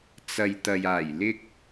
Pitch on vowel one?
low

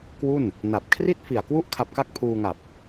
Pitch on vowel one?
falling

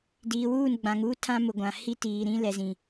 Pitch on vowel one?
low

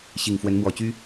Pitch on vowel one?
low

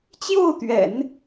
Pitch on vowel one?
falling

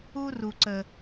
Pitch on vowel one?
high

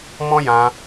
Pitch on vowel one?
high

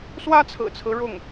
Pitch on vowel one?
high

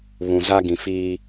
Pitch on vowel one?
low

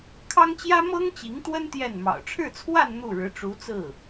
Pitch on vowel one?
high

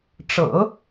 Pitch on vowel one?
low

